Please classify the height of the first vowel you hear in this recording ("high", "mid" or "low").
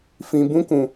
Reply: high